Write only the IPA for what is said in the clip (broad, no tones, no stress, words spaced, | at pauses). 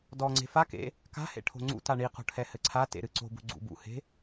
dɔŋ͡ǀe̤ fakḛ | ka̤hḛʈʰo̤ ŋ͡ǀṵta ɳiqo̤ ʈʰɛhɘǀʰatḛ ɾɨǀo̤bṳ ɡ͡ǀṵbṵhe̤